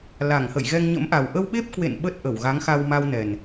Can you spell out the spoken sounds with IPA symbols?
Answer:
l a˧˩ ŋ h ə̰˧˨ j ɣ ɛ˧ ŋ ɲ ə̰˧˥ m ʔ a˨˩ w ʔ ə˧ w ɓ e˦˥ p̚ k w ḛ˧˨ n ɓ ə˦˥ t̚ ʔ ə˧˩ w ɣ a˨˦ ŋ x a˧ w m a˧ w n ɛ˨˩ n

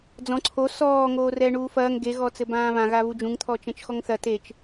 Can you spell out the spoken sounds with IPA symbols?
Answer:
d͡z ɔ̃ ǀʰ o s ɔː ŋ oː r ɛː ɳ uː f ɐː ŋ ɡ e ɣ ɔ t͡s ɘ b ãː β ã ɣ a β u d͡ʒ ũ ŋ t̪ʰ ɔ t͡ʃ ɛ̃ t͡ʃ x ɔ ŋ θ ɐ t e t͡ʃ

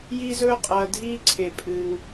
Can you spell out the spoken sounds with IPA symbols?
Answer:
j iː˥ z ɵː˥ qʼ ɐː˨ dʱ iː˦ ǀʰ e˩ pʼ ɨː˩ ŋ

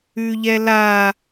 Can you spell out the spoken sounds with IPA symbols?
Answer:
ʉ ʎ ɛ l a

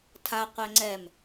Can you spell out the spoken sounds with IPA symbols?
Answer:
tʰ a qʷ ɛ ŋ͡ǀ ɛ m

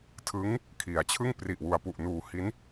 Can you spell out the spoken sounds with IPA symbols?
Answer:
tʰ ɯ˦˥ ŋ | kʰ i˩˦ a̯ t͡ɕʰ ɯ˥˩ ŋ p r i˨˩ ʔ w u˩˦ a̯ p u˨˩ ʔ n uː˨˩ h i˦˥ n

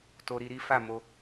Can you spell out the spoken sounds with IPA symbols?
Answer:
t o˧ ɾ i˧ ɾ i˦ f a˦˨ m o˧

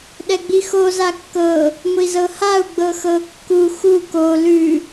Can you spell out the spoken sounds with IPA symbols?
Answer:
ɗ ɛ ɡ͡b i x o z a kː ɤ | ŋʷ i z ɤ h a u̯ ɡ͡b ɤ x ɤ kː u x u k o l ʉ

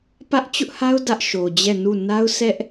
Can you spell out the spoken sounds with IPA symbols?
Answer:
p ä˦ ʔ t͡ɕ ʊ˦ ʔ h a˦ ʊ̯ d ä˦ ʔ ʃ o˨ d͡ʑ ɛ˦˨ n u˦˨ n a˦ ʊ̯ s ɛ˦ ʔ

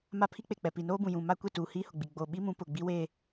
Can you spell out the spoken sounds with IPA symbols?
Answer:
m a˦˨ pʰ i˦ k͡p e˨ k͡p ɛ˨ p i˨ n oː˦ b ũ˨ j ũ˨ m a˦ kʷ e˦˨ t uː˨ h iː˦ h ʊ˨ ɡ͡b i˨ ɡ͡b oː˨ ɓ i˦ m ũ˨˦ p ʊ˨ ɡ͡b i˦ w e˦

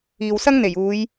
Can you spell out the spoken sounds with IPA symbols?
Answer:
iː˨ w s ɐ˥ ŋ n̪ e˨˩ j uː˨˧ j

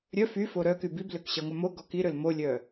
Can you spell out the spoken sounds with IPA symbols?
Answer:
ɾʲ œ f y f o ɾ œ k y b i b l ø k ɕ ɐ ŋʷ œ m o ɡ ɔ k i ɾ ø l m o lʲ œ

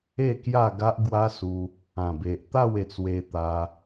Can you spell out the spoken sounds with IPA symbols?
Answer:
e˥˧ k j a˥˧ ɡ a˦ ʔ ɡ w a˦ s u˧ | ã˨˩ b e˨ ʔ t̪ a˥˧ w e˧ t͡s w e˧ t̪ a˧

